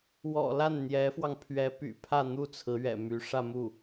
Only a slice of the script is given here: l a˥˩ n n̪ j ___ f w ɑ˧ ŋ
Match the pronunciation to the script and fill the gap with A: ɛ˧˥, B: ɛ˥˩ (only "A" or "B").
A